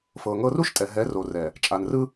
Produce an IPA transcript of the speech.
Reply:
fɤ˨ŋɤ˦ ru˦ʃtʼɛ˨ ɦɛ˨˦ro˨rɛ˨ | t͡ʃʼa˨nrɯ˦

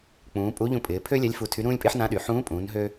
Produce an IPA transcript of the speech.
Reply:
k͡pũː˩˧pʼu˧˥ ʎũ˧pʼɪː˩˧ pʰø˥lʲa˧˥lʲ fu˧tʰy˧˥ ɾũː˥lʲpʼɪː˥ħ nã˧˥ɗy˩ ħũː˧˥pʼũː˩˧nɦø˧

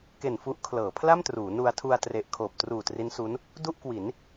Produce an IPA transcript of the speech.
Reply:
ke˨˩n fu˦˥ʔkʰlɤː˩˦ pʰla˥˩mtruː˩˦nu˧a̯tʰu˧a̯ tre˨˩ʔkʰoː˨˩p̚truː˨˩ tri˦˥nsu˦˥n | du˥˩ʔkwi˩˦n

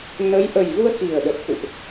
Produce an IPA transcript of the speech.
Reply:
nə˨˦j ʔə˨˩jɣu˧ə̯ xi˨˩ə̯ɗə˨˩t̚xṵ˧˨ʔ

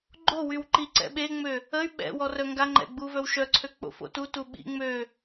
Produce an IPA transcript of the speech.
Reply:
ɡ͡ǃo wywǃiǀɛ̰ ɓeŋ͡mø | əy̯ ɓɛ̰wɔ rœŋɡaŋ͡ǃɛ̰ ɡ͡buvœwʃœǀʰø k͡po̰fo̰tutu ɓḭ ŋ͡mø

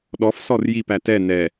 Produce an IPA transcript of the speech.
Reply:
ɗɔf sɔrjip ætɛ nɛ

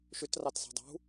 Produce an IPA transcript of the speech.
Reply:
ʃʏtrɑtsɑ̤ dˤṳ

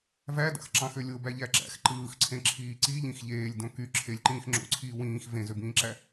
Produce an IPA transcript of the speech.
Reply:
vædɑ̰x ǁɑ̃xølʲobæ ʎæǁæ̰x ǃɯːxǀʰẽǁʰiː ǀiʎĩx ʎeːlʲdõ ky ǁʰelʲǃĩːx ŋ͡ǁo̰ǀʰiː wĩːx vẽzøbĩːǁæ

